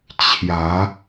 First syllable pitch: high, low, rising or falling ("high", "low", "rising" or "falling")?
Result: rising